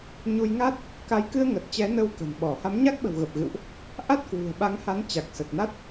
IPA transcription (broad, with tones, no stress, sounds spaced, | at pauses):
ɲ u˧ j ŋ a˦˥ t̚ | k a˨˦ j k ɨ˧ ə̯ ŋ ə˨˩ t̚ t͡ɕ ɛ˨˦ n ə˧ w k ə̤˨˩ n ɓ ɔ˧˩ h a˨˦ m ɲ a˦˥ k̚ ɓ ə̤˨˩ w ɣ ə˨˩ p̚ ɣ ɨ̰˧˨ w ʔ | ʔ a˦˥ t̚ k w ṳ˨˩ ə̯ ɓ a˨˦ ŋ h a˨˦ n t͡ɕ a˨˩ k̚ s ə˨˩ t̚ n a˦˥ t̚